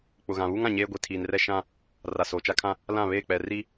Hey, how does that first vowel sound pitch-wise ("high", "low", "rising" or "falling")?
low